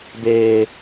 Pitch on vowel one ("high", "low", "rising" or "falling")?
low